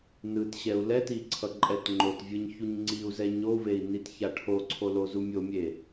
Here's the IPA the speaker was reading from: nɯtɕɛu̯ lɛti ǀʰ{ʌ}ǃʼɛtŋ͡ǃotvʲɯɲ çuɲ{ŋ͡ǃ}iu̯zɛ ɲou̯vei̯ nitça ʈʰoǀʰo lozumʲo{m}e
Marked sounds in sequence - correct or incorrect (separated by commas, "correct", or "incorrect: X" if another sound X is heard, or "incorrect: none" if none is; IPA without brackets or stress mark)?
correct, incorrect: ŋ͡ǀ, incorrect: mʲ